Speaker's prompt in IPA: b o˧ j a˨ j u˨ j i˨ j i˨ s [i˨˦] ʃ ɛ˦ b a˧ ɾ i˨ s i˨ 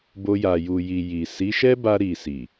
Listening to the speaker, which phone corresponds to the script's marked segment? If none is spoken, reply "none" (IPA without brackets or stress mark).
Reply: i˨˦